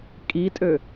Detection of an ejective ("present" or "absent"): present